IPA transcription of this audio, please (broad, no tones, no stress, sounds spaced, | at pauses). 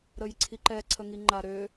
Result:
ɾ ə j ǀʰ i ǃ ɛ ǀʰ ə ŋ i ŋ͡ǃ a ɾ ø